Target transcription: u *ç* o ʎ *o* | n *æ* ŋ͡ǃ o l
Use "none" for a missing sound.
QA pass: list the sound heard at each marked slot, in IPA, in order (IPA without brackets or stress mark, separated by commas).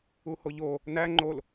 h, o, æ